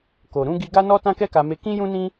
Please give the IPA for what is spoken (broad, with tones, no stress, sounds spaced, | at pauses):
k o˨ ɾ ũ˧ ɡ i˧ ɡ a˦ n ɔ˦ t ã˦ k ɛ˦ k a˧ m e˧ k ĩ˦ j ũ˦ n ĩ˦